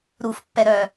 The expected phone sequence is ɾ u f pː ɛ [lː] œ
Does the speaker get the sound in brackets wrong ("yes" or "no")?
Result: yes